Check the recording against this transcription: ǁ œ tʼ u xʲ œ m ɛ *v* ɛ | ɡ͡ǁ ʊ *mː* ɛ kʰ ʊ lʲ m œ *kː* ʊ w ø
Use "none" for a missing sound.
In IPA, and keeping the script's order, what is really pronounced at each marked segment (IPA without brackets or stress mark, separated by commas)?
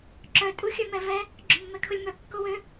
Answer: v, mː, kː